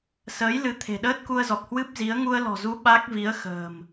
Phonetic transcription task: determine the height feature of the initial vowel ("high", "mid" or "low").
mid